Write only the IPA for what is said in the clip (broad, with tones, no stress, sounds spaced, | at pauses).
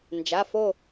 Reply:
n d͡ʒ a˩˧˩ f o˧˩